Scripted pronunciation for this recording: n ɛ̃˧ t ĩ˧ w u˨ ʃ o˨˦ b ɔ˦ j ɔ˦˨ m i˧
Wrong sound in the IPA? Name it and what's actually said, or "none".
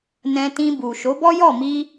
w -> b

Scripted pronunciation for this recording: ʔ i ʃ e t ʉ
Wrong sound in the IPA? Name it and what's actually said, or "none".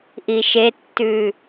t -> tː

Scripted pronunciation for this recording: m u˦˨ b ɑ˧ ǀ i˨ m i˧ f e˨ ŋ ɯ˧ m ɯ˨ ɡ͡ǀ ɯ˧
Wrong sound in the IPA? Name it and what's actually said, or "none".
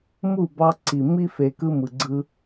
ŋ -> k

